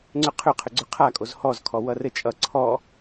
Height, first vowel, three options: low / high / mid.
high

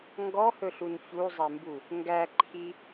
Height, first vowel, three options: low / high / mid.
mid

